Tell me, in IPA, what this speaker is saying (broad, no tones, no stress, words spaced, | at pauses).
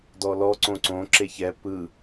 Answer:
dɔlɔ ǀõǀõ ǁeçɛ pɯ